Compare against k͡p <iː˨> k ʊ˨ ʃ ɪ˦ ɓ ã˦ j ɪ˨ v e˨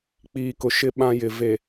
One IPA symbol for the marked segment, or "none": iː˨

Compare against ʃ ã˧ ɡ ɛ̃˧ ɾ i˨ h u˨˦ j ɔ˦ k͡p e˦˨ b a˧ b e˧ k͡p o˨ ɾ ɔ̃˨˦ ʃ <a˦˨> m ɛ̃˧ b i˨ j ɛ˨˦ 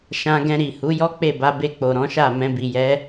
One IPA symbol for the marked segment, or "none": a˦˨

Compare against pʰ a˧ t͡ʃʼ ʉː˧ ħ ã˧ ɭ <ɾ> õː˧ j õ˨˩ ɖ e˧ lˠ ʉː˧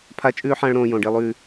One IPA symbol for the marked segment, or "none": ɾ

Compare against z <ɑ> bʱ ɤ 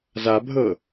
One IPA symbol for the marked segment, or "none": a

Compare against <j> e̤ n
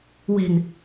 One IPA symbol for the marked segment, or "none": w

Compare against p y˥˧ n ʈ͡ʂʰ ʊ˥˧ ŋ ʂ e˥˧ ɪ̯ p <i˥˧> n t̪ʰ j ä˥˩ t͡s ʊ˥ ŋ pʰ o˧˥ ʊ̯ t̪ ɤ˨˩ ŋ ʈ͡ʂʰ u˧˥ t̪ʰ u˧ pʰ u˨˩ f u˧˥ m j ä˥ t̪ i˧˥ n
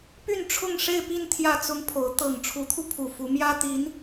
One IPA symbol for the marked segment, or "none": i˥˧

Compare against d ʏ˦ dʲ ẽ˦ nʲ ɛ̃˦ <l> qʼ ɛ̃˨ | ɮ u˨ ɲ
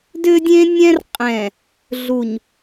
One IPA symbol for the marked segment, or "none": r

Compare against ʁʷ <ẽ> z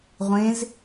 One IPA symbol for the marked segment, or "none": ẽ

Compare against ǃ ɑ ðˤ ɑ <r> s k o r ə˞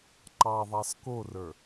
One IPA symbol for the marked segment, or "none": none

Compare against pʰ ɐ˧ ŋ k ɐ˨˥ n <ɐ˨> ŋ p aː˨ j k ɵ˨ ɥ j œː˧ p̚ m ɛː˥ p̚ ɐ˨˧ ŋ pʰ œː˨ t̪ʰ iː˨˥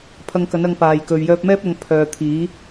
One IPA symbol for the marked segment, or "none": ɐ˧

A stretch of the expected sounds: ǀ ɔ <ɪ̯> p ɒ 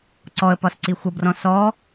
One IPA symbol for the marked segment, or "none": ə̯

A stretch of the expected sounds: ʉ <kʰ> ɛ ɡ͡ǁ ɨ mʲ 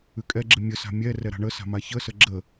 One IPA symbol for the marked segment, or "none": kʼ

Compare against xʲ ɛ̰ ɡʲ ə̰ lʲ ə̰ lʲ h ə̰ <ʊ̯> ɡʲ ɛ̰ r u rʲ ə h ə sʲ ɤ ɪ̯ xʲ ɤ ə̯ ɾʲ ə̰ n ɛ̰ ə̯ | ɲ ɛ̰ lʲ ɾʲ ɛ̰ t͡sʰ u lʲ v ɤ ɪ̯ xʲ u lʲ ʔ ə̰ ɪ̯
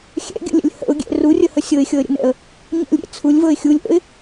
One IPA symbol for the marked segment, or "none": ʊ̯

